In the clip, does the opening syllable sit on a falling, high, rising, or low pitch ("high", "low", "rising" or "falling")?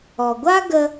low